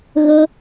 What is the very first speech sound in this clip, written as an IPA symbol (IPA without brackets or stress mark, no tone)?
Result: ɣ